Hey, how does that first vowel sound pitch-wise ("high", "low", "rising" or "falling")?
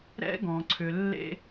high